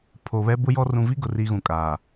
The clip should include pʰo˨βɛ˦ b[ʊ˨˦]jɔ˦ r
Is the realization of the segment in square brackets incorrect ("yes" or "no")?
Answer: yes